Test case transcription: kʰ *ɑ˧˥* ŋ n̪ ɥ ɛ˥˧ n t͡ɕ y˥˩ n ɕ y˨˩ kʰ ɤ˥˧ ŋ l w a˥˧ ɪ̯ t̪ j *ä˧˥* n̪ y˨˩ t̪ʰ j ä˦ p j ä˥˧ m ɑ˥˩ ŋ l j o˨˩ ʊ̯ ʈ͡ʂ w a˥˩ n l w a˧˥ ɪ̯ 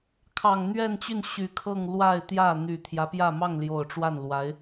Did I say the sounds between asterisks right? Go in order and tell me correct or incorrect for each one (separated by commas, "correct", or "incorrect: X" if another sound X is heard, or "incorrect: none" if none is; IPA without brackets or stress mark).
incorrect: ɑ˨˩, incorrect: ä˥˩